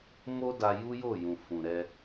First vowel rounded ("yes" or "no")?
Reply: yes